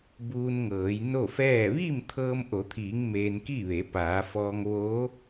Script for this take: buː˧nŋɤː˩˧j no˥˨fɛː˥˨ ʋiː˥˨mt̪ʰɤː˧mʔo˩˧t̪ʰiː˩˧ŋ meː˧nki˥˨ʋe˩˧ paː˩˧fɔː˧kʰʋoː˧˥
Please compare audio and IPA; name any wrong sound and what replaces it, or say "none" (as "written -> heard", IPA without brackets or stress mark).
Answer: kʰ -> ŋ